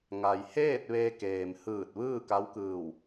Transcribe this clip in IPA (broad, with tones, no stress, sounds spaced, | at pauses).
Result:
ŋ a˩ j h eː˥˨ t̚ ʋ e˧ k eː˩ m h ɯː˧˩ t̚ ʋ ɯː˥˨ k a˧˥ w k ɯː˧˩ w